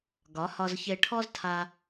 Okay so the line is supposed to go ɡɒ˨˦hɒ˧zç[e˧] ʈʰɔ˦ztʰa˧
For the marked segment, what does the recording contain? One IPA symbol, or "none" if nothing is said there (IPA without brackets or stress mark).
e˧